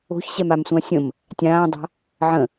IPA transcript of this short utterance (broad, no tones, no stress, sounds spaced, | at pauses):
o̤ ç ɕ ɛ m a m sʷ ã sʲ ə̃ m | tʲ ãː dˤ a̤ | ʕ ə̃